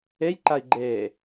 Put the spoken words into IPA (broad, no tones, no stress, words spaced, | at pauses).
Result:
ejǃai̯ɡ͡ǃeː